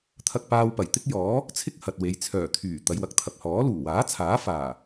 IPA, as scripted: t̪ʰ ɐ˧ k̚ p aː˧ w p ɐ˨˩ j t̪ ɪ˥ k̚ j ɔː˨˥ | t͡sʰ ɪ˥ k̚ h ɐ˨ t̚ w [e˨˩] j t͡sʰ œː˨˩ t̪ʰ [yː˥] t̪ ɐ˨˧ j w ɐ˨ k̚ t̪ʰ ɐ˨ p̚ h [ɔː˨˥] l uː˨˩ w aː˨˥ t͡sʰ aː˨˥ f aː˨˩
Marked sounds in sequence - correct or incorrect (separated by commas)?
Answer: incorrect, incorrect, correct